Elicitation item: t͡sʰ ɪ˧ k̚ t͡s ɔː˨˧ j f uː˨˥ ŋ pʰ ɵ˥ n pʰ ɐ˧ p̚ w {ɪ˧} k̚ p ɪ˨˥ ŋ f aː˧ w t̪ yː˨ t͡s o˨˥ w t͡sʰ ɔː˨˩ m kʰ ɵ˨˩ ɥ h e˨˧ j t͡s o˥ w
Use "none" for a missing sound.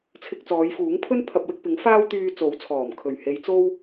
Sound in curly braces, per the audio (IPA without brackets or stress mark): ɪ˧